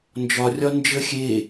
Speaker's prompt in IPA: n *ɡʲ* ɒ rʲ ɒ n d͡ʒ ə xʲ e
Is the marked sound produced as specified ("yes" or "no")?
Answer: no